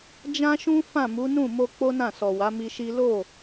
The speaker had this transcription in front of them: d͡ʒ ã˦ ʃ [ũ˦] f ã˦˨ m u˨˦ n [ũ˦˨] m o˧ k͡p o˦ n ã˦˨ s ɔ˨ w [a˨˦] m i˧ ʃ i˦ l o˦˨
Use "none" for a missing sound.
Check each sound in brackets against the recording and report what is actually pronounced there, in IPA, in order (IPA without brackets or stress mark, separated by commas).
ũ˦, ũ˦˨, a˨˦